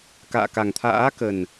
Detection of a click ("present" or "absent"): absent